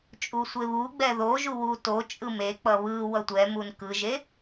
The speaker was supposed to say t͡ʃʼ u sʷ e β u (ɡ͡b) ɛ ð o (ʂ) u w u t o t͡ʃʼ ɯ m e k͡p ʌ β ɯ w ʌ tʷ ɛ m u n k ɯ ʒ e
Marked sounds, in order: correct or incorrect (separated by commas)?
correct, incorrect